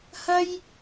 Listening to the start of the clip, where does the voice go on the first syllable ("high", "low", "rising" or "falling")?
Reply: high